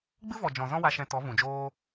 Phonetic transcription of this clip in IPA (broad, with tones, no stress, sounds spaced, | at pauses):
ɡ͡b ɨ˦ v ɔ˨ d͡ʒ ɔ̃˨ z ɔ̃˦ w a˧ ʃ ɛ̃˧ t ɔ˨˦ v ũ˨ d͡ʒ oː˦